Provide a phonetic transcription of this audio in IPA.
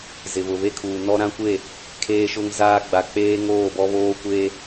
z ɪ˨ β ʊ˨ β e˦ kʰ uː˨ n ɔ˦ ɾ ã˦ kʷ e˦˨ | kʰ eː˦ ʃ ʊ˦ ŋ z aː˦ ɡ͡b a˨ k͡p eː˦ ŋ oː˦˨ b ɔ˦ β oː˦ kʷ e˦

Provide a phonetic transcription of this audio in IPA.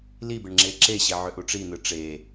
l i b e ɳ ŋ͡ǁ e ǁ e ɕ e ʕ ø ʔ u ʈ͡ʂ i n̪ ɯ ʈ͡ʂ e

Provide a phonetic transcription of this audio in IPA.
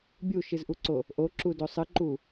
bʲ u ʃ ɨ z ʔ u ǀ o | ʔ o ǁ u d o sˤ ɨ ǃ u

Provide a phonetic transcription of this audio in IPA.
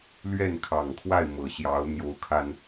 l ɥ ɛ˥˩ n kʰ ɑ˨˩ ŋ kʰ w a˥˩ ɪ̯ m ɤ˨˩ ɕ j ɑ˧˥ ʊ̯ n̪ j o˧˥ ʊ̯ kʰ a˧ n

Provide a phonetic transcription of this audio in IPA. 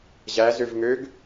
ʑ æ z ø v ŋ ø ɡ

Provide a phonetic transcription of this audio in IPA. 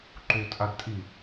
ǃ u tʼ a d tʼ i

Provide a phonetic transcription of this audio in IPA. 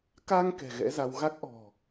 k a˧ ŋ k ɛ̤˨˩ ɣ ɛ̰˧˥ z a˧ w ɣ a˦˥ k̚ ʔ ɔ̤˨˩

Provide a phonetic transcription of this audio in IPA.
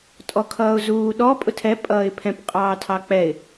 tʼ ɔ kʰ ʌː ʊ̯ z uː ɗ ɔ pʼ ʊ tʰ ɛ pʼ ʌː ɪ̯ pʰ ɛ̃ p qʼ ɑː tʰ ɑ k͡p ɛ ɪ̯

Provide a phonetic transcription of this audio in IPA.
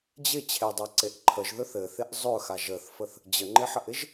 d͡ʑ ɪ t͡ɕʰ e dˤ a ǀ e ʔ ǃʰ ə ʒ ð ɵ θ ɘ θ ɪ ʔ zˤ ɵ x a ʒ ə θ f ə θ | d͡ʑ ə ŋ͡ǃ ɪ ħ ə ʔ ɪ ʒ

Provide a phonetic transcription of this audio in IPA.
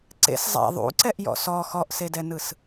ǀ ḛ s zˤ a̰ ðˤ ṵ ǀ ɛ ʔ j ɔ̰ s ɔ x ɔ ʔ s e d ɛ n ɯ s

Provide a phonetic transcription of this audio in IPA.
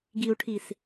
ɡ i u̯ ʈʰ i s

